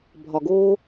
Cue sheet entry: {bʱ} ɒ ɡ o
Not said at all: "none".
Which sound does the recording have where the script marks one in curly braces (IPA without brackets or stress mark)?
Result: bʱ